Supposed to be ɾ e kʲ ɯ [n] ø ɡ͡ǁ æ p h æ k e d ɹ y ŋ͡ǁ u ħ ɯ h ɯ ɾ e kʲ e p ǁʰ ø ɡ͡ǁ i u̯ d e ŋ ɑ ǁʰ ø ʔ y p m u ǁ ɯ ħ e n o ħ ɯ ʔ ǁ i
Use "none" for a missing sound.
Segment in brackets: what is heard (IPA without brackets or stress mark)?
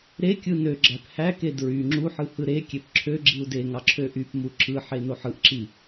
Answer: n